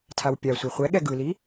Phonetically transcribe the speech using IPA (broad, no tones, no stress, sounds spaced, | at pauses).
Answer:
tʰ a w pʲ a sʷ e χʷ ɛ ɠ ɛ ɡ ɯ l i